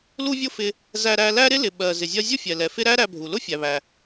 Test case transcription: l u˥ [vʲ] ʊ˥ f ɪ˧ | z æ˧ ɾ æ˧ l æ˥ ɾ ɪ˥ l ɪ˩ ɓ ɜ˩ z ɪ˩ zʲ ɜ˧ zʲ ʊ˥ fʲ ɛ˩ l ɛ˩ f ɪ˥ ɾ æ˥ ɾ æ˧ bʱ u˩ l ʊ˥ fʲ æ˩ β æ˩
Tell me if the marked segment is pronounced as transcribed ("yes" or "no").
yes